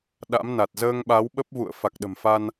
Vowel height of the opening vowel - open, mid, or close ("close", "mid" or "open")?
open